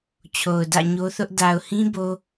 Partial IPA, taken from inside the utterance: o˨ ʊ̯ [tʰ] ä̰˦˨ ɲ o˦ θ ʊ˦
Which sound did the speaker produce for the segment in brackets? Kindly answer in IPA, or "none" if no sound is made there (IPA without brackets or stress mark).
d